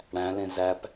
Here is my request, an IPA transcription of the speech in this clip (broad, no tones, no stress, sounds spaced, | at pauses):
ɽ æ̃ l ẽ z æ p